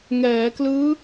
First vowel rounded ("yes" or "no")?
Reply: no